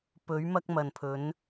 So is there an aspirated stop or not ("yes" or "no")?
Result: yes